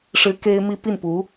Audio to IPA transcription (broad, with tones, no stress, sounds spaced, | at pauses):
ʂ ɻ̩˧˥ k e˥ ɪ̯ m i˥ p i˥˩ n p u˧˥